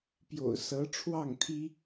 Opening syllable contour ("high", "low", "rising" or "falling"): low